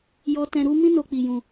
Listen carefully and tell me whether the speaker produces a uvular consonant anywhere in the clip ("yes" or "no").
no